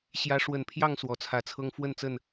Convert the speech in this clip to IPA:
ɕ j ä˨˦ ʂ w ə˨˩ n pʰ j ɑ˥˨ ŋ s w ɔ˨˩ t͡sʰ ä˨˦ t͡sʰ ɤ˦ ŋ f w ə˥˨ n t͡s ə˥˨ n

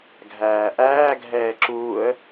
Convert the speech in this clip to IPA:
ɡʱ æː ʔ æː ɡʱ ɛː ǁ uː ə̯

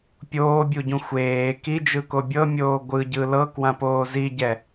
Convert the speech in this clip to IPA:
pʲ oː bʲ u ɟ ũ xʷ eː k i d͡ʒ ɯ k o bʲ ɤ mʲ oː ɡʷ ɯ ɟ ɯ l ɤ k w ã p oː z i ɟ ɛ

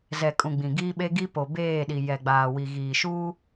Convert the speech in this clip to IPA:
z ɛ˨ kʼ ũ˨ ɡ͡b ĩ˨ ɡ iː˦ ɓ e˦ ɡ i˦ p o˨ b eː˦˨ ɗ i˨ j ɛ˨ ɡ͡b aː˨ w i˨ ɣ iː˨ ʃ uː˦

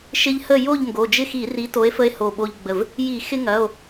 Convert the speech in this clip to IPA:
ʃ ɪ˦ ʎ h ə˥˨ j o˥˨ ʎ ŋ ɡ o˩˧˩ d͡ʒ ɪ˥˨ x i˧˩˧ r i˨˥ t o˨˥ e̯ f ə˦ e̯ h o˧˩ ɓ o˦ ʎ ɡ͡b ə˧˩ v | j i˧˩˧ x ɪ˦ ŋ ɐ˩˧˩ o̯

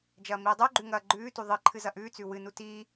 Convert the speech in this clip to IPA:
d͡ʒ ɐː m iː dˤ u ɡ͡ǃ ʉ ŋ ɐː ɡ͡ǃ ʉː t u ðˤ ɨ ǃʰ ɨ z ɐ ʔ ʉː t͡s ʉ w ɨ n u t iː

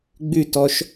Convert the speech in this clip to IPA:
ɡ͡b ʉ t ɔ ʃ

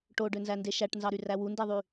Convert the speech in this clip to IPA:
ʈ o ɖ ø n z æ n d e ʃ æ ʈ n z ɑ ɾ y r æ w u n d e ðˤ y

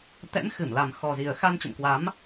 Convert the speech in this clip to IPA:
t̪ ɛ̰˧˥ m x ɨ˧˩ m l a˨˩ m x ɔ˨˩ z i˨˩ ə̯ x a˧ n t͡ɕ ə̰˧˨ m k w a˨˦ m

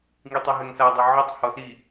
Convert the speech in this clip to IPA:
ŋ i tˤ ɐ ɦ ɛ ŋ s a dˤ u ʕ ʌ tˤ h ɔ s i

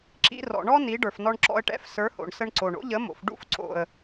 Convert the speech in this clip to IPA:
ǁ ḭ˧ r ɔ̰˨ ɳ ɔ˦ n i˨˦ ɖ ə˞˨ f n ɔ˧ ɳ ǁ ɔ̰˧ ə̯ ʈ ɛ̰˧ f s ə˞˨˦ h o̰˨ ɳ s ə˧ ɳ ǀ o˨ ɳ o̰˦ ʎ ə˨˦ m o̰˨ f ɖ ṵ˦ f ǀ o̰˨ ə̯

